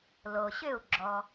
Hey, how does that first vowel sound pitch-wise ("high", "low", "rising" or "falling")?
low